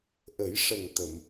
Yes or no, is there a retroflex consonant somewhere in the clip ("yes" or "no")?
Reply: yes